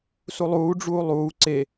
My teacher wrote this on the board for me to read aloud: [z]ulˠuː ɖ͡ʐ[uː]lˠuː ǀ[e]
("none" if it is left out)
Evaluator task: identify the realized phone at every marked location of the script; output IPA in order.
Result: s, uː, e

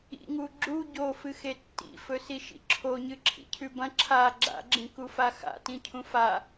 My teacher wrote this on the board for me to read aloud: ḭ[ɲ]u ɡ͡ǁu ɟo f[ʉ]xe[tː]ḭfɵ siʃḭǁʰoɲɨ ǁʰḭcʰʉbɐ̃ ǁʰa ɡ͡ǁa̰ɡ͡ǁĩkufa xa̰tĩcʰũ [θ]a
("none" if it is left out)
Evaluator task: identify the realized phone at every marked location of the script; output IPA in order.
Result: ŋ, ɨ, tː, f

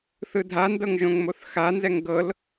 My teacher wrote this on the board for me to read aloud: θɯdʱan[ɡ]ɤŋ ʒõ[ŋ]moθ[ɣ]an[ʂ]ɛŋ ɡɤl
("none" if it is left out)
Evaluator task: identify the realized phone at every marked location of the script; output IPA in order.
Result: d, ŋ, x, z

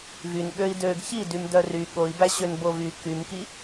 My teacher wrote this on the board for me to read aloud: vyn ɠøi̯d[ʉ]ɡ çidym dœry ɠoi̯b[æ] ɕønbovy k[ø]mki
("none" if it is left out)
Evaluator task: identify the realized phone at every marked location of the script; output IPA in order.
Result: ø, æ, y

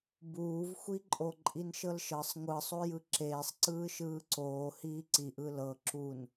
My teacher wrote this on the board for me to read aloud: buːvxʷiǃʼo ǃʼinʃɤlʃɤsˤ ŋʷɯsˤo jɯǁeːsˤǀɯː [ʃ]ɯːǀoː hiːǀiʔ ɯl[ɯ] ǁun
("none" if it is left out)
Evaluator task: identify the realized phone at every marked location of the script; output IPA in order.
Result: ʃ, ɤ

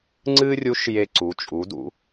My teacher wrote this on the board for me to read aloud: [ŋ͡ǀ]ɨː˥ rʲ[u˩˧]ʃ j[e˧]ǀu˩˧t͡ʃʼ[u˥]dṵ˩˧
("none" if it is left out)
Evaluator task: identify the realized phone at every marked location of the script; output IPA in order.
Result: ŋ͡ǀ, u˧˥, e˧, u˩˧

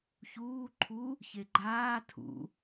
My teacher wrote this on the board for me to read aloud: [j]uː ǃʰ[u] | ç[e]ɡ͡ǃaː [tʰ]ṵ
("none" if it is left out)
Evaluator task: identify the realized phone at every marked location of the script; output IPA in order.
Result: ç, u, e, tʰ

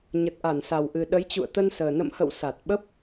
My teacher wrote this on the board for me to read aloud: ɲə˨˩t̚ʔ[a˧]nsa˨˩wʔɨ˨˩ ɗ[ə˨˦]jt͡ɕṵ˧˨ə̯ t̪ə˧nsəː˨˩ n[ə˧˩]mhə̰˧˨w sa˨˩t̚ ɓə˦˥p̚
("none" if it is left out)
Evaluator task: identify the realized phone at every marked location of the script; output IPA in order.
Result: a˧˩, ə˨˦, ə̰˧˨

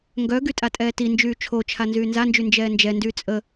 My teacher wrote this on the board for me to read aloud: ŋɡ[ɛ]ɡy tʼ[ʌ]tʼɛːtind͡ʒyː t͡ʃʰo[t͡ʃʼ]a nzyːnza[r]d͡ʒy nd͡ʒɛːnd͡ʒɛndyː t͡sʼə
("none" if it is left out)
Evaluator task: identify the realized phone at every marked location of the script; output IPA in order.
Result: œ, a, t͡ʃʰ, n

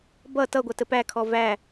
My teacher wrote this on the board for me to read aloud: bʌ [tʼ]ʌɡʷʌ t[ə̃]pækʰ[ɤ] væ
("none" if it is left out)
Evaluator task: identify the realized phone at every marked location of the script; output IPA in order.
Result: t, ə, ɔ

